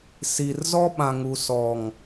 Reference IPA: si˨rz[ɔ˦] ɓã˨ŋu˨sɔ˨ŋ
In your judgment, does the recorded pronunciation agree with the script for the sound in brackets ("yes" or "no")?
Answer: yes